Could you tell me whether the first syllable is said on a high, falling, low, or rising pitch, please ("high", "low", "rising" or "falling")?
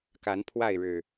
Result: rising